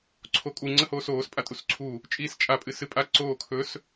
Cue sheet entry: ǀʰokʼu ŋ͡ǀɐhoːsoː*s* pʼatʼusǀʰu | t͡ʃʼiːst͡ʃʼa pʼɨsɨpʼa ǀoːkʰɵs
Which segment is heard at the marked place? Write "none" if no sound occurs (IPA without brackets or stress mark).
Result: s